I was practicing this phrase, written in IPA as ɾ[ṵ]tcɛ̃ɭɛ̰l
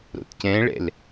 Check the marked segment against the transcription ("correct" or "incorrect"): incorrect